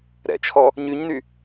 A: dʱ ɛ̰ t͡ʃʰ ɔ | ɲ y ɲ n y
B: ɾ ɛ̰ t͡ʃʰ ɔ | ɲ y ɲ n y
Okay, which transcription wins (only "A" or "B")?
B